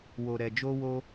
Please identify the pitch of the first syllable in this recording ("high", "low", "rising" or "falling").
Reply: low